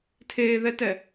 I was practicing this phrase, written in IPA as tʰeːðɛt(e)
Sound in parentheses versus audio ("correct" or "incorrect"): incorrect